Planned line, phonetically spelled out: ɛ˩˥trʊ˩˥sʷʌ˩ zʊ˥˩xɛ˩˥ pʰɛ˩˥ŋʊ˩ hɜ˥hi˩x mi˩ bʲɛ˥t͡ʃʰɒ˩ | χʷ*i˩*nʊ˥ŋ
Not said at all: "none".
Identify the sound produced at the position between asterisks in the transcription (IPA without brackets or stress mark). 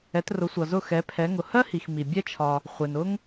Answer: ɪ˩